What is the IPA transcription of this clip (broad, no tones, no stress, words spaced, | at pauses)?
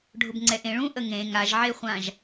ɖʱʊbŋ͡ǀɛʔẽɭũ ʔəŋẽ ŋaʒʕeχʷãʒ